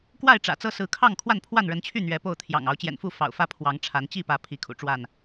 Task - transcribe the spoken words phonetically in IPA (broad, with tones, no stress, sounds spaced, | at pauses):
k w a˥˨ ɪ̯ ʈ͡ʂ ä̰˨˩ t͡s ɤ˦ s ɹ̩˨˦ kʰ ɑ˥˨ ŋ kʰ w a˥˨ n pʰ w a˥˨ n ɻ ə˨˦ n t͡ɕʰ y˥˨ n̪ ɥ ɛ˨˦ p o˥˨ ʊ̯ t̪ʰ j ɑ̰˨˩ ŋ ɑ˨˦ ʊ̯ t͡ɕ j ɛ̰˨˩ n f u˥˨ f ɑ̰˨˩ ʊ̯ f ä˥˨ pʰ w ɑ˨˦ ŋ ʈ͡ʂʰ a˨˦ n t͡ɕ i˥˨ p ä˨˦ pʰ i˨˦ kʰ ṵ˨˩ ʈ͡ʂ w a˥˨ n